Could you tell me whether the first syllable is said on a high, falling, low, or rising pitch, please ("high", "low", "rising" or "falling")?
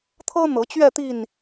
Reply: high